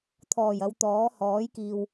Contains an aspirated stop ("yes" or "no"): yes